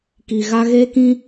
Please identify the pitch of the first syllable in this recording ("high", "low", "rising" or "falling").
low